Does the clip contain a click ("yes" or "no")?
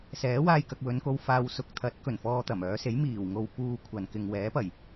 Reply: no